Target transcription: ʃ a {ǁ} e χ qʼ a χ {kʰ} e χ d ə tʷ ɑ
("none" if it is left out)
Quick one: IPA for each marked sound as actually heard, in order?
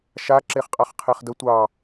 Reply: ǁ, qʰ

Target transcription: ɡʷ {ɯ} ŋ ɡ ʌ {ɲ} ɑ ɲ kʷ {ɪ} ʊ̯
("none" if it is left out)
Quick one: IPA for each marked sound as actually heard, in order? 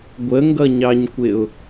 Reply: ə, ɲ, ɪ

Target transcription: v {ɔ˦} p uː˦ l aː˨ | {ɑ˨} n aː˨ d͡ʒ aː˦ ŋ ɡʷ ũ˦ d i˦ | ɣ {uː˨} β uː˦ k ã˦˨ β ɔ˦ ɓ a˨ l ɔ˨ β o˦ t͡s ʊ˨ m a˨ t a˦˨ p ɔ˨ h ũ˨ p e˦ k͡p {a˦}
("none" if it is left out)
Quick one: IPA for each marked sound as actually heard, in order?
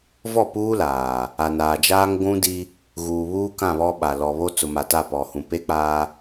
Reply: ɔ˦˨, a˨, uː˨, aː˦

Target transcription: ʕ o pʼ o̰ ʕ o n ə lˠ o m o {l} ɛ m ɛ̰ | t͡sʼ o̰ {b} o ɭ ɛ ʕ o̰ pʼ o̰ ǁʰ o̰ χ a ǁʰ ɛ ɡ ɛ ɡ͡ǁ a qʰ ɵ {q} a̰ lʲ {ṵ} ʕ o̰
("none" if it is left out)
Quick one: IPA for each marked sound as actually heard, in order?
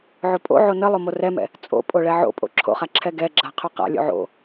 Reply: r, pʼ, q, o̰

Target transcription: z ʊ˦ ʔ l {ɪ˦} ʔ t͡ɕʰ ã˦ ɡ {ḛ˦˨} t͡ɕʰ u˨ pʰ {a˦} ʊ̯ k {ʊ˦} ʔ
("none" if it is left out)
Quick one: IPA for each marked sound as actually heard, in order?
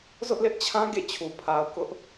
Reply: ɪ˦, ḛ˦˨, a˨, ʊ˦

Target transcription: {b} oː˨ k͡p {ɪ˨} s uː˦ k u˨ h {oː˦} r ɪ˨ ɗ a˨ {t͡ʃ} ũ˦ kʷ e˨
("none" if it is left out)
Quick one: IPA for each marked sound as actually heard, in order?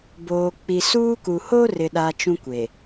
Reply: b, i˨, o˦, t͡ʃ

